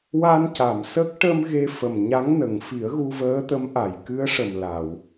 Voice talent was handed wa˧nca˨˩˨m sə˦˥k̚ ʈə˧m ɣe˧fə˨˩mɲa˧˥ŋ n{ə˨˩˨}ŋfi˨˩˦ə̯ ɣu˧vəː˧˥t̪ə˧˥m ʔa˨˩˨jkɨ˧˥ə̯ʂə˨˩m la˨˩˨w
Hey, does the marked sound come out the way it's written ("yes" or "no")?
yes